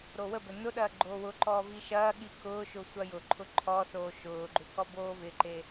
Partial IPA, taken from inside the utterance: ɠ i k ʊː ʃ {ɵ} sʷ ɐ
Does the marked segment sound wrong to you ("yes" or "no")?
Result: yes